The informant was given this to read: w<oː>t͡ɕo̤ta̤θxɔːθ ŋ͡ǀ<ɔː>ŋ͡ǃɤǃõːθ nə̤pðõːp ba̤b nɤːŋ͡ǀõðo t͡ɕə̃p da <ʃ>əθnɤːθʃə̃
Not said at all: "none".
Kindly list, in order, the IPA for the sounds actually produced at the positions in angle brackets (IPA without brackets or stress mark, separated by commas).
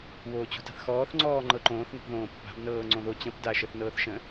oː, ɔː, ʃ